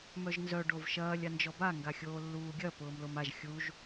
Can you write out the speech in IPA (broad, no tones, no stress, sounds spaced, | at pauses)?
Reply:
m œ ʒ n z œ ɖ o v ʃ ɐː lʲ a n d͡ʒ ɔ b a ŋ ɡ a xʲ oː lː uː ɡʲ ɐ p ʊː m l o m a ʒ xʲ u ʒ